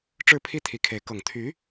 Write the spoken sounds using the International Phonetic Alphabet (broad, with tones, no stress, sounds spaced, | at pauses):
ʈ͡ʂ ɻ̩˥˩ pʰ i˥ t̪ʰ i˧˥ kʰ e˧˥ ɪ̯ k ɤ˨˩ ŋ t̪ʰ y˧˥